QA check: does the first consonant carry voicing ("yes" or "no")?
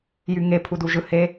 yes